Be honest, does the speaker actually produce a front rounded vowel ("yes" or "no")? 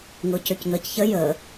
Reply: yes